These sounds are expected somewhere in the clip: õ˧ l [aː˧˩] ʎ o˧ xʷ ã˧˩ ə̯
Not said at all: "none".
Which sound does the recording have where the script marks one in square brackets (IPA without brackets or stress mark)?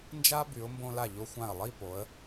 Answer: a˧˩